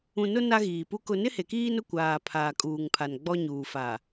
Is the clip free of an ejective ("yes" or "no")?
no